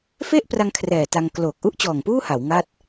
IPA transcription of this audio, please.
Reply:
f e˥˩ ʔ p r a˧ ŋ kʰ r ɛː˨˩ t a˧ ŋ k l oː˨˩ k̚ ʔ u˥˩ ʔ t͡ɕ ɔː˨˩ ŋ p uː˥˩ h a˩˦ w ŋ a˥˩ t̚

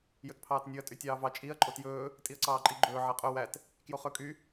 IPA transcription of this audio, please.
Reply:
j ɵ t pʰ ɑː t nʲ ʉ ɐ̯ tʼ y tʲ ɑː v ɑ t͡ʃʼ i ɐ̯ ǃʼ o t j ɵː | tʼ i ɐ̯ ǀ ɑː ǃʼ i ɡ͡ǃ ɵː ʕ ɛ qʼ ɵ w æ t | k j o χ ɵ kʼ y

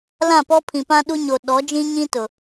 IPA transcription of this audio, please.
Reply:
l ã˦˨ p ɔ˦ pʰ ĩ˨ p ã˦ ɗ u˦ ɲ o˨ ɗ ɔ˨˦ d͡ʒ ĩ˦ ɲ ĩ˦ t ʊ˨

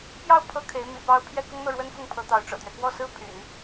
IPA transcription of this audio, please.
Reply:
p j ɑ˥˩ ʊ̯ pʰ ɤ˥ kʰ e˧˥ ɪ̯ m ḭ˨˩ p ɑ˥ ʊ̯ pʰ j ɛ˥˩ k ʊ˥ ŋ n̪ ɤ˥˩ ɻ w ə˥ n f ʊ˥˩ ŋ pʰ ɤ˧˥ t̪ ɑ˧˥ ʊ̯ ʈ͡ʂ ɤ̰˨˩ t̪ ɥ ɛ˦ k w ɔ˥˩ s ɹ̩˥ pʰ y̰˨˩˦ n

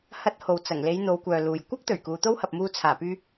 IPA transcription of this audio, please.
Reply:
h ɐ˧ t̚ h o˨ w t͡s ɐ˨˩ ŋ l e˨˧ j n̪ o˨˧ w kʷ œː˨ l uː˨ j kʷ ɐ˥ k̚ t̪ ɵ˨˩ ɥ k uː˨˧ t̪ o˥ w h ɐ˨ p̚ m uː˧ t͡sʰ aː˨˩ p yː˧

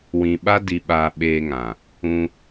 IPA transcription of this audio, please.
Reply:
w ĩ˧ ɓ a˦ d i˧ ɓ aː˧ ɓ eː˧ ŋ ã˨ | ũ˧

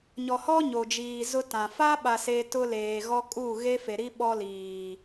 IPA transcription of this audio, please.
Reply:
ɲ ɔ˨ h ɔ˦ ɲ o˨ d͡ʒ iː˨ z ʊ˦ t ã˨ f a˦ ɓ a˨ s e˦ t ʊ˦ l eː˨ ɣ ɔ˦ kʼ uː˦˨ ɣ e˦ f e˨ ɾ i˦ ɓ ɔ˦ l iː˨

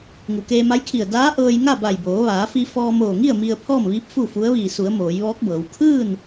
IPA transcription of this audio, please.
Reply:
ŋ u˩ k eː˧ m a˧˥ j kʰ i˧˩ ə̯ d aː˧˥ ʔ ɤː˧ j ŋ a˥˨ b a˧˩ j b oː˩˧ ʋ aː˩˧ f i˧ f ɔː˧ m oː˧˩ ŋ i˥˨ ə̯ m i˧ ə̯ pʰ ɔː˥˨ m ʋ iː˧˥ p̚ f u˥˨ f u˧˥ ə̯ ʋ iː˧˩ s u˩˧ ə̯ m oː˩˧ j ʋ ɔː˧˥ k̚ b ɤː˩˧ w kʰ ɯː˥˨ n

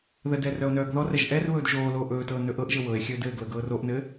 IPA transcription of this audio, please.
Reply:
ð ə d ɛ r œ o̯ n œː ɡ ð ɔ r ɛ ʒ ʔ ɛ r β ɵː d ʒ oː l oː ʔ ɵː t ɤː n ɵ ʔ ɤ ʔ ʒ ɘ w ɤ e̯ xʲ ɵ d ɘː ɡ l ɤ ɡ ɤː r o ʔ n ɘː

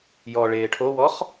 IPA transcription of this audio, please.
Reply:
j ɔ ɭ eː ʈʰ o w ɔ χ

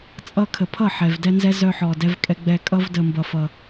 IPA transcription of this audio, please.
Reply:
t͡sʼ ʌ˧ kʰ ə˨ pʰ ʌ˦˨ ħ ɛ˨ v d ɛ˦ n z ɛ˦ z œ˧ ħ ɔ˨ d ɛ˧ v kʼ ɛ˧ ɡ͡b ɛ˧ kʼ ʌ˦ v d ə˧ m b ʌ˧ f ʌ˧

